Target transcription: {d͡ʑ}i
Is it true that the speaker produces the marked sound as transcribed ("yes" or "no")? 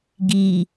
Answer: no